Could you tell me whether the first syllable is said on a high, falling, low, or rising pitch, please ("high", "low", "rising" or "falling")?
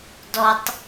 low